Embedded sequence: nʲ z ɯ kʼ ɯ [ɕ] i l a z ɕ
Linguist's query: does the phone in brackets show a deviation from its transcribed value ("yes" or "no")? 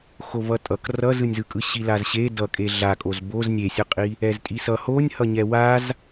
no